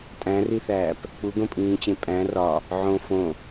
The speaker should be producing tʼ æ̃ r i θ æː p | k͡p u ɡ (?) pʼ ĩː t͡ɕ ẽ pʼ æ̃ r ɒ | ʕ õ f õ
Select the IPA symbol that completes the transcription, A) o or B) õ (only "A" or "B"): B